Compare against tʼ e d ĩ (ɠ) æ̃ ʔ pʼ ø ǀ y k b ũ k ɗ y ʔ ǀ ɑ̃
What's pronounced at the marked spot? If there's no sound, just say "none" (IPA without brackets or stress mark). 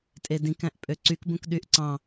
k